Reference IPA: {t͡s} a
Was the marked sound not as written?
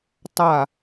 yes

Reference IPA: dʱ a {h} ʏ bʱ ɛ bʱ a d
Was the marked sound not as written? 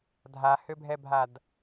no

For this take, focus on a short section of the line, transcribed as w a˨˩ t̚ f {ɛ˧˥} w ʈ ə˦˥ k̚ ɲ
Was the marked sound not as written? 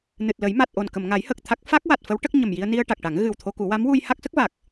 yes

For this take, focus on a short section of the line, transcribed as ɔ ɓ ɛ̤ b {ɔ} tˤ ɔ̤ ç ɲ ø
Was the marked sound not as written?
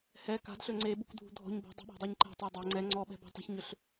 yes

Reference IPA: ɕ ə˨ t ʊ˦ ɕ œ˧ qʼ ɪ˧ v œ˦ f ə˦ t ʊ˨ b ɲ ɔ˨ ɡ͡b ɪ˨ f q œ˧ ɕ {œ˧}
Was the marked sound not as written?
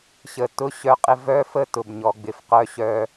no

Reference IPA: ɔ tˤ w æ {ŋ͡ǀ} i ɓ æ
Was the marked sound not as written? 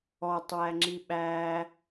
yes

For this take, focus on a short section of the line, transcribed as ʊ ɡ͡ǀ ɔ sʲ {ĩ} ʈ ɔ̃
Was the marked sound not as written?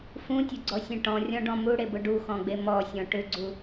yes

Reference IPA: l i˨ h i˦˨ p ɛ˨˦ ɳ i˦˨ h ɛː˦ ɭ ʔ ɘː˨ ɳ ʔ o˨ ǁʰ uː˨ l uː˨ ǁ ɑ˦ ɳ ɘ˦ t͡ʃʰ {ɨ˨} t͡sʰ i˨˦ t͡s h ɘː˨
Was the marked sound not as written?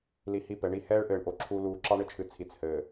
no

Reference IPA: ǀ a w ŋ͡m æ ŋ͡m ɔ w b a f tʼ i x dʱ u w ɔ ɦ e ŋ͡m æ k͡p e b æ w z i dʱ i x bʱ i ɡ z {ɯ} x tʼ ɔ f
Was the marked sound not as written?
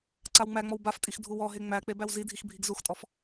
yes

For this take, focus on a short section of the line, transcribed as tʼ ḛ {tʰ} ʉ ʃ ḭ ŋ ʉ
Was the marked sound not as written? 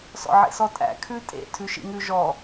no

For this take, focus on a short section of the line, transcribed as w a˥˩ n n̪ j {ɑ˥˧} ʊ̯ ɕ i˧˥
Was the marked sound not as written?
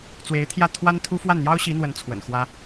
yes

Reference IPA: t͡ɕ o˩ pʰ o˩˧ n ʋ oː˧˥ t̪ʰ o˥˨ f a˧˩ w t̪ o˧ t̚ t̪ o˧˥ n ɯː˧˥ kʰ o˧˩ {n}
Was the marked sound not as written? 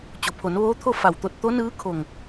yes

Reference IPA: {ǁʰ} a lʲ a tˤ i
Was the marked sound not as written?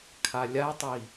yes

